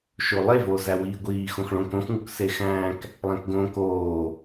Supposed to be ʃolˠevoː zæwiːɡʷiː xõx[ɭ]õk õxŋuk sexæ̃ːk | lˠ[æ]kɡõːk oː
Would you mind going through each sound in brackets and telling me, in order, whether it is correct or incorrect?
correct, incorrect

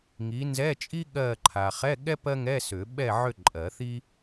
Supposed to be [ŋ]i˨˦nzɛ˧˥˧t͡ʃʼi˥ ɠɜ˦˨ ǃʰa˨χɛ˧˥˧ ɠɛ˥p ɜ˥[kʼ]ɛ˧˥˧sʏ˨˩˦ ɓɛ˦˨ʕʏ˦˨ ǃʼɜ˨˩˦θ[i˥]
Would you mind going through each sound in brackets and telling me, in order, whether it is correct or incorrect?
correct, incorrect, correct

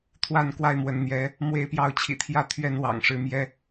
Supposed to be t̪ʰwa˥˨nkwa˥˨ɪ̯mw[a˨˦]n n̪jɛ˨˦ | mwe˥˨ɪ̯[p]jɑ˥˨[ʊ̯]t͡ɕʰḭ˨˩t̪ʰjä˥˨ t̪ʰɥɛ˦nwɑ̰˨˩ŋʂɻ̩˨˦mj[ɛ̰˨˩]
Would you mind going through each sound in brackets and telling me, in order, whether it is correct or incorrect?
incorrect, correct, correct, incorrect

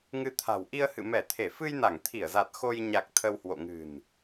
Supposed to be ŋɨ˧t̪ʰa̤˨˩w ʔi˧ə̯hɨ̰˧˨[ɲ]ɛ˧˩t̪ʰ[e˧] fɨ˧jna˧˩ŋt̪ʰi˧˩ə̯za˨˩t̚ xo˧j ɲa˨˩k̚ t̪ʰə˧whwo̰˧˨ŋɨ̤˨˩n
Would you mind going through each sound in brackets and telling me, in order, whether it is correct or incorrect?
incorrect, incorrect

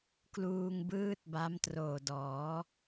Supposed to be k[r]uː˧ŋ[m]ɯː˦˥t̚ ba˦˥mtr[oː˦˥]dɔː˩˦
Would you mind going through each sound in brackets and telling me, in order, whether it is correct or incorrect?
incorrect, incorrect, incorrect

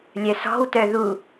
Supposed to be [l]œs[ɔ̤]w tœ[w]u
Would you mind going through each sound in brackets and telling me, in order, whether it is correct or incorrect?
incorrect, correct, incorrect

